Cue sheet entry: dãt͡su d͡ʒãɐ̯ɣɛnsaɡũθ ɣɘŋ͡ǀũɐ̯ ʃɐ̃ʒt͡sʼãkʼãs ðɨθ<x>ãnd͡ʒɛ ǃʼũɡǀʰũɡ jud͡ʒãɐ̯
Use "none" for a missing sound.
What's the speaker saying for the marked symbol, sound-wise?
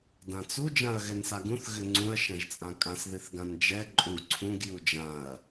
ɡ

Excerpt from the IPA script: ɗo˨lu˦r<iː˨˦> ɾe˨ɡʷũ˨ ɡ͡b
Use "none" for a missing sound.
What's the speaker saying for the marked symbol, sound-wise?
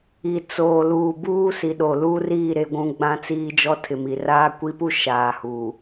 iː˦˨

